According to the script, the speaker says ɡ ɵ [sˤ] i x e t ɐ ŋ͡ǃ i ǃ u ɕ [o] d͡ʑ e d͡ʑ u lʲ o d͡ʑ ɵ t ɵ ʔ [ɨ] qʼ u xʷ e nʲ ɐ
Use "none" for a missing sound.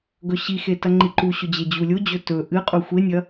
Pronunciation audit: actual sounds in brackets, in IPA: ɕ, ɵ, ɨ

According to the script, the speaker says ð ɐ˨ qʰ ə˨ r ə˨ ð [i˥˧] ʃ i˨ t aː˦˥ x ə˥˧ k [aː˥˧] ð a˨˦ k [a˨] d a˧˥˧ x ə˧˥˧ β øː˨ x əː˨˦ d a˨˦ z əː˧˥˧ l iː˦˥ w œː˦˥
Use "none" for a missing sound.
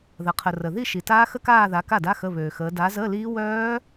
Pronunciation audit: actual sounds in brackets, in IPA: i˥˧, aː˥˧, a˥˩

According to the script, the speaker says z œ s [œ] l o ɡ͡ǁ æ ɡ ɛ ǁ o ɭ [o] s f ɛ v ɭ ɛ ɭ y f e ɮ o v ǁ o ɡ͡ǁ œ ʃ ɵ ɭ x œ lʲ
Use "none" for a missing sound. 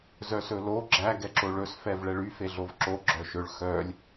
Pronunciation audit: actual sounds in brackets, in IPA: ɵ, ɵ

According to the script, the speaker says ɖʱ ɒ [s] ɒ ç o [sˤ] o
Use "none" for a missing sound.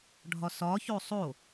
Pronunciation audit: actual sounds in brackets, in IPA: s, sˤ

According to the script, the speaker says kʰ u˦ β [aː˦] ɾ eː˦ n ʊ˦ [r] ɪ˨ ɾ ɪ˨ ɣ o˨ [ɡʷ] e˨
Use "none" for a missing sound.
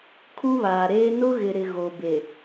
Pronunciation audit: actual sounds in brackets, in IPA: aː˨, ɣ, b

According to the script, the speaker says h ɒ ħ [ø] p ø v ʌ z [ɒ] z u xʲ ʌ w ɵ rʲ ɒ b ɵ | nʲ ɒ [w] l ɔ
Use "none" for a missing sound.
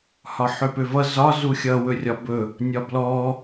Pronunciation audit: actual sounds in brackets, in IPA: ø, ɒ, b

